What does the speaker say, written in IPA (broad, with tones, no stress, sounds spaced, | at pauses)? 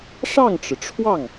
ʂ ɑ˥˩ ŋ ʈ͡ʂ ɻ̩˩ ʈ͡ʂʰ w ɑ˥˩ ŋ